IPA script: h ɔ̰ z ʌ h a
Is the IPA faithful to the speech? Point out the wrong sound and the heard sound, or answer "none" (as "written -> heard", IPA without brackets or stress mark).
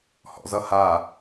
none